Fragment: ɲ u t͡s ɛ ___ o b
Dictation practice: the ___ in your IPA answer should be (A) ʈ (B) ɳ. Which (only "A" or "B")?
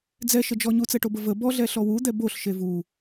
A